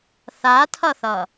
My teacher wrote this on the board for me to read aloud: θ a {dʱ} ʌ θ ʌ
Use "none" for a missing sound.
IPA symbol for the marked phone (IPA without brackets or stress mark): tʰ